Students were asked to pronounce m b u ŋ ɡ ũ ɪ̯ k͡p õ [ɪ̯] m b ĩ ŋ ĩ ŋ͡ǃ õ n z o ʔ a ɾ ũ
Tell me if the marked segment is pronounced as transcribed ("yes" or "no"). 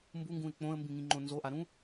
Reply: no